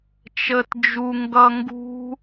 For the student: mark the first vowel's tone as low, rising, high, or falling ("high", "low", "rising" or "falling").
low